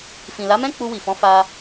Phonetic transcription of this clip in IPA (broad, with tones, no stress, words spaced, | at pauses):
fĩ˨la˨˦mɛ̃˦ k͡pu˧wi˨fɔ̃˨˦ fa˧